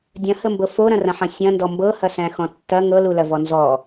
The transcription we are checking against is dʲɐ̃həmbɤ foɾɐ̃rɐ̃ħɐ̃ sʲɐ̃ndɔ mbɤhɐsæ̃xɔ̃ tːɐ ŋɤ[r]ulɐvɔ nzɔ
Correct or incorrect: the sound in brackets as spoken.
incorrect: l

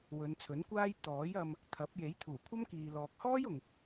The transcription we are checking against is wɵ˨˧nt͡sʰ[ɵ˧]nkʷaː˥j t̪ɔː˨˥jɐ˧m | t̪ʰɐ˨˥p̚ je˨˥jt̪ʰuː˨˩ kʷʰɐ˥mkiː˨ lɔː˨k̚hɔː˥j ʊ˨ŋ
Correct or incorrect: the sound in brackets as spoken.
incorrect: ɵ˨˥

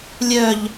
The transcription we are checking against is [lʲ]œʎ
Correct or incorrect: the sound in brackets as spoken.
correct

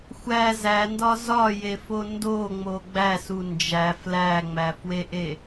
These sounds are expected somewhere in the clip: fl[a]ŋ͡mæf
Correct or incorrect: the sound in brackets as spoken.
incorrect: æ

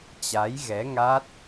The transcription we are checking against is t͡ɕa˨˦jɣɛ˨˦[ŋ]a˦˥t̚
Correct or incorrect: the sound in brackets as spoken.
correct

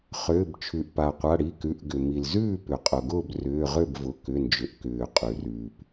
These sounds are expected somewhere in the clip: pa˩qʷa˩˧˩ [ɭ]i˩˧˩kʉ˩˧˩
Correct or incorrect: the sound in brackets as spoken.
incorrect: ɽ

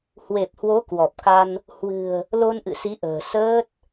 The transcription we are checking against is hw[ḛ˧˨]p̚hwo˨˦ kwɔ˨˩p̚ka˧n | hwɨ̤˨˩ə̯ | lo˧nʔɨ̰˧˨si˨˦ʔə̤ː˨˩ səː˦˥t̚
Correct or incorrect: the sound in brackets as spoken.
incorrect: e˨˩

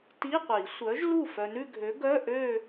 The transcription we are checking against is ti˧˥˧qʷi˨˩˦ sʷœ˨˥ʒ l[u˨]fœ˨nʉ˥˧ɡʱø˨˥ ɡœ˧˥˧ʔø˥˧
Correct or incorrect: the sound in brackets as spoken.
incorrect: u˥˩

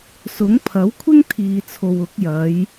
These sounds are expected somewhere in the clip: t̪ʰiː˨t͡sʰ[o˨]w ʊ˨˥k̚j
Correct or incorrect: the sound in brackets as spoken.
correct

